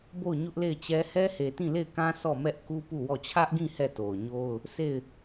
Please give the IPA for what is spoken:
bo˦˨ʊ̯ɲʊ˦ʔle˦˨ɪ̯t͡ɕɛ˦ hɛ˦he˨tĩ˦˨ le˦˨ɪ̯kã˦ sɔ˦˨mɛ˦ʔ ku˦pu˦˨wɔ˦˨ t͡ɕʰä˦ʔɡĩ˦˨ hɛ˦˨to˨ʊ̯ɲo˦ʊ̯ | sʰe˦˨ɪ̯

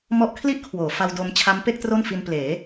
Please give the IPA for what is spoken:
mɔ˦˥ʔkʰli˥˩ʔkʰwoː˩˦ fa˧wdo˧m t͡ɕʰa˦˥mpe˥˩k̚ tro˥˩nfi˧npleː˩˦

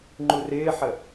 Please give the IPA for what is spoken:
ŋ͡ǃurɪːħə

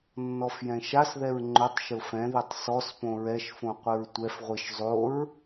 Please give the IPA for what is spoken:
nːɔfjɛ̃ʃasðɛɹ ŋ͡ǃʊtˤ ʃʊfɛ̃ðetˤ sɔspõ ɹɛʃfõ qʷɪɹtʷɛfʁʷiʃ zˤoɹ

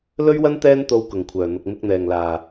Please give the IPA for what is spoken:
lɵ˥ɥwɐ˥n t̪ɛː˥nt̪o˨˧w kʊ˨˩ŋkʷʰœː˨˩n̪ʊ˨k̚ mɪ˧k̚n̪ɛː˨˩ŋlaː˨˩

